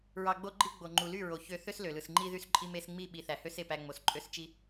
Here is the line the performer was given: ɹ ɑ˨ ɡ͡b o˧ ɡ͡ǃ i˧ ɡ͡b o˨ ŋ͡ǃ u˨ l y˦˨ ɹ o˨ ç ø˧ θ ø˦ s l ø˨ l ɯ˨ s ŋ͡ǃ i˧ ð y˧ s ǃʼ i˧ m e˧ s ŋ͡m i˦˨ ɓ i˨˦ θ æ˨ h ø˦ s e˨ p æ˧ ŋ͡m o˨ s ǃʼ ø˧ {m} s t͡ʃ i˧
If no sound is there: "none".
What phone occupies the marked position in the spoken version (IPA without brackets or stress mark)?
none